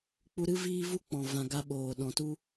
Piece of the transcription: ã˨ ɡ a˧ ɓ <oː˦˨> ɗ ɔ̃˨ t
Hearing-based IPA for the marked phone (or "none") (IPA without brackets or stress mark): oː˨